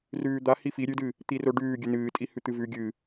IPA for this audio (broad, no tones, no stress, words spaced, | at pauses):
rʉːd̪a hifi ɾʲʉdɨ | t̪iroɖʉː ɡʲɨnɨːtʼihʉ t̪ɨvʉ ɡʲɨ